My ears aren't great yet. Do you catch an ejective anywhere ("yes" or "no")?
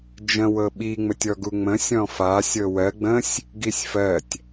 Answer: no